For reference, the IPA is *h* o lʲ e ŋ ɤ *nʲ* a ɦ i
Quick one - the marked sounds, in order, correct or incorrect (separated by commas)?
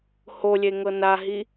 correct, incorrect